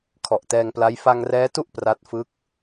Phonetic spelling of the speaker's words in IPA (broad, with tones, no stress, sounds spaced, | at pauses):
kʰ ɔ˨˩ ʔ t ɛː˧ ŋ p l a˦˥ j f a˧ ŋ r ɛː˦˥ t u˥˩ ʔ p r a˦˥ t̚ f ɯ˦˥ k̚